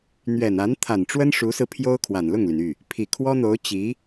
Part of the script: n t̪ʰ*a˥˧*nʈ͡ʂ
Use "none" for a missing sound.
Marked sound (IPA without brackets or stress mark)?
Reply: a˨˩